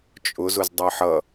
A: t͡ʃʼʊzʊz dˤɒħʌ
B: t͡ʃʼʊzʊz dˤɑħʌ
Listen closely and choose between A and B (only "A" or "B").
B